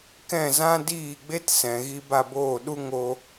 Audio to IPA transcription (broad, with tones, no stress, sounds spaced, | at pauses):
k ɛ̃˦˨ z ã˦ d iː˦˨ ɡ͡b e˦ t s ɛ̃˨ ɣ i˧ b a˦˨ b oː˦˨ ɗ u˦ ŋ o˧